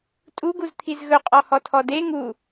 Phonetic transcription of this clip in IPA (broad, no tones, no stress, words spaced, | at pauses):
tʼuɡuz t̪ʰizɣɵ qʼɔhɔtʰɔde ŋu